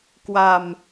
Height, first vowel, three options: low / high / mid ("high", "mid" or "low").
low